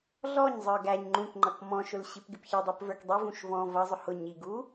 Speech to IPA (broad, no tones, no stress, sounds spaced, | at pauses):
ɮ ɔ ɲ zˤ ə˞ ɡ æ ɲ ŋ͡ǃ ũ k ŋ͡ǃ ʌ k m ɔ̃ ʃ ʊ l ɕ i p ɡ ɪ p ç ɪ dˤ u p v ə˞ k dˤ i v ũ ʃ v ɔ̃ v ʌ zˤ ʊ h ʊ ɲ i ɡ u